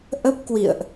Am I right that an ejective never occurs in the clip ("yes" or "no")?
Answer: yes